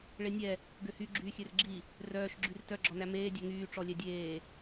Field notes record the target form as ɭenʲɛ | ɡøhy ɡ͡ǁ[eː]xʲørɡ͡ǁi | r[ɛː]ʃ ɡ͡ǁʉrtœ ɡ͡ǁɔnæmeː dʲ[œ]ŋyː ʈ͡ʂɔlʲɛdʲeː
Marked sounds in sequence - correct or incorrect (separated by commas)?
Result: incorrect, incorrect, correct